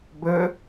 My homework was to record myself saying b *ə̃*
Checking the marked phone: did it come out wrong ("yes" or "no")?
yes